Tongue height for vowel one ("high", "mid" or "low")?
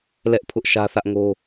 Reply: mid